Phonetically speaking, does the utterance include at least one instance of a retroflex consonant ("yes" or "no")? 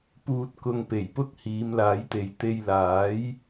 no